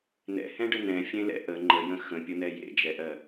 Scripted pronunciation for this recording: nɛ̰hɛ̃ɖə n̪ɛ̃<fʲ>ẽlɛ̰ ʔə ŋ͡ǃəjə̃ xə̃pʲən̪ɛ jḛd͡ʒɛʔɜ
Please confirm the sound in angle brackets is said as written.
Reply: yes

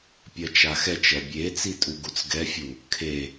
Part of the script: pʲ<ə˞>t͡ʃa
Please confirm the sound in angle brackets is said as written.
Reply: no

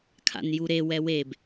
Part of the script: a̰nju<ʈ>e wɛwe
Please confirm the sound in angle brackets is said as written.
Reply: no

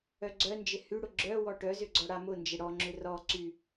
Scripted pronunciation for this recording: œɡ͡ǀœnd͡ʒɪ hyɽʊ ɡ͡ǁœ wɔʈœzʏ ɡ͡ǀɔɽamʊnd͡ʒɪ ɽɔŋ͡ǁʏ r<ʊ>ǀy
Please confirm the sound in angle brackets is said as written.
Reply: no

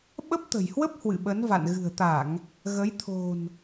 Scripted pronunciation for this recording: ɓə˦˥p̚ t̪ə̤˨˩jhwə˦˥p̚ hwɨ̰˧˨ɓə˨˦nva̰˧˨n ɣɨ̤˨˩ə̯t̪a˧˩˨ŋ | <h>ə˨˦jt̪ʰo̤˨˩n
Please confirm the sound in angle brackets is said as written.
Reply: no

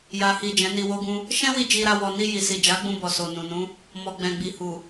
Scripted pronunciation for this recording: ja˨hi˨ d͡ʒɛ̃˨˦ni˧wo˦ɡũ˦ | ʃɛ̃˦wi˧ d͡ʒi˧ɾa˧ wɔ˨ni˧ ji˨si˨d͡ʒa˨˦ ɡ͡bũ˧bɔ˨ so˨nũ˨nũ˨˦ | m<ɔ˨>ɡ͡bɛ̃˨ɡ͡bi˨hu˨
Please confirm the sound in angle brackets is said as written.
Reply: yes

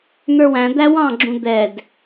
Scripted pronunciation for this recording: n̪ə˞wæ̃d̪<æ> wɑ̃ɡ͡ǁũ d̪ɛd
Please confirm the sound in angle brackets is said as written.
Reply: yes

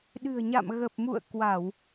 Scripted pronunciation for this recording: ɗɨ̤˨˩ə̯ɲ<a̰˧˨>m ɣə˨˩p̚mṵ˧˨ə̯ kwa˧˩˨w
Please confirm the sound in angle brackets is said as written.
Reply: yes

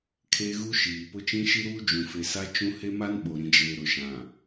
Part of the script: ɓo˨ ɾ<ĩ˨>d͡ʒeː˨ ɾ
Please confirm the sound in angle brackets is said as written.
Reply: yes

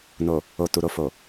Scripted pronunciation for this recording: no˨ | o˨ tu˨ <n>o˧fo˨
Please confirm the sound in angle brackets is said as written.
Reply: no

